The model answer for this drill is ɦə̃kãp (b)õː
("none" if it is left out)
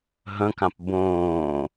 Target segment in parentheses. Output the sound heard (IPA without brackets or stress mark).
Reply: b